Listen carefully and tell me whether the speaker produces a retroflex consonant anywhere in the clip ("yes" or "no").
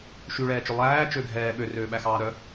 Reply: yes